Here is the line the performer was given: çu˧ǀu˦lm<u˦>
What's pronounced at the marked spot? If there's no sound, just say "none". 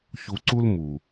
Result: u˨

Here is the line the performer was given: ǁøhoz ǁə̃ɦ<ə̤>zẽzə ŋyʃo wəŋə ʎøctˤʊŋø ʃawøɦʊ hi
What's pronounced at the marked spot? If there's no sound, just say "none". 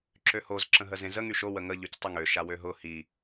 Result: ə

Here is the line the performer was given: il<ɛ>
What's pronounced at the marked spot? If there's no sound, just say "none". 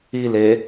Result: e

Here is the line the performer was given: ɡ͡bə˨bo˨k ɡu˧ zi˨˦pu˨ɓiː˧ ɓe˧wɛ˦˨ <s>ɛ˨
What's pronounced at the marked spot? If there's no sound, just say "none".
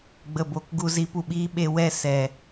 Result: s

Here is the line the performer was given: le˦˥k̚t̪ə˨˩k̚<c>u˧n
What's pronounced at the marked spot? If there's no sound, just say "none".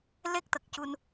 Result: c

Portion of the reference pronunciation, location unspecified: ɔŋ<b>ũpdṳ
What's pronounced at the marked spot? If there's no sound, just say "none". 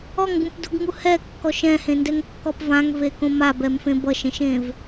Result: b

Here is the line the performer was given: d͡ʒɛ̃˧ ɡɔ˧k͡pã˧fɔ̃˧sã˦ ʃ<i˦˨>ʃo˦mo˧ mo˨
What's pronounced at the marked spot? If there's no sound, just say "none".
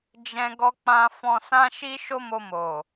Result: i˦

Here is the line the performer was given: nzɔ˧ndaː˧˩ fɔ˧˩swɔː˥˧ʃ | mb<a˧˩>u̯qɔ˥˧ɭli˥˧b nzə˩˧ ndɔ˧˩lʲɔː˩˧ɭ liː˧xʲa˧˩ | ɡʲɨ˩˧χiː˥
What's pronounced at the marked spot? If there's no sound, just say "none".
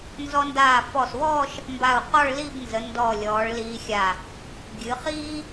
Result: a˧˩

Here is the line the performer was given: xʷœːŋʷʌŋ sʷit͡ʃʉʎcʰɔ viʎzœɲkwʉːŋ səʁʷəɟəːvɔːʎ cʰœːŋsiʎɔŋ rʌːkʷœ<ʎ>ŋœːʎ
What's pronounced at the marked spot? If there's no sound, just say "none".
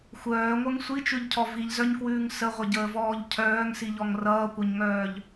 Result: ɲ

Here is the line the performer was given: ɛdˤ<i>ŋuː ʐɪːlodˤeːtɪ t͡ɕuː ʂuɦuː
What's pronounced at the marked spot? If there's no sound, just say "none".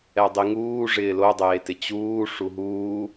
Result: i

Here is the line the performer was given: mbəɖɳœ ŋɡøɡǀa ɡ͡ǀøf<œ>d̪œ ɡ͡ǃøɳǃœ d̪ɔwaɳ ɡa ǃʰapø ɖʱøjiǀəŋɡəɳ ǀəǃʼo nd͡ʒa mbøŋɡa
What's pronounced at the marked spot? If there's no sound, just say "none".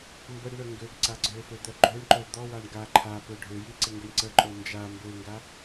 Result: ø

